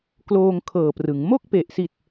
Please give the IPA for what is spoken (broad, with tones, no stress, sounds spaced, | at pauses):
k l oː˧ ŋ kʰ ɤː˨˩ p r ɯ˩˦ ŋ m o˥˩ k̚ p e˨˩ ʔ s i˨˩ t̚